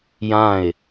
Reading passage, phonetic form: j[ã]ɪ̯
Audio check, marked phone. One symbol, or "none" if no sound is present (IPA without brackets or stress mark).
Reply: ã